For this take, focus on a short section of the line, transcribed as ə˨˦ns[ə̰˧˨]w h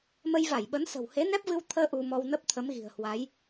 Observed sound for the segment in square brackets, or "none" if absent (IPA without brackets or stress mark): ə̤˨˩